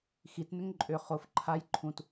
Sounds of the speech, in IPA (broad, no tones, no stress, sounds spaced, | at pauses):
x i t n ʏ ŋ ǃʼ ʏ χ o f ǃʰ a j ǃʰ ũ t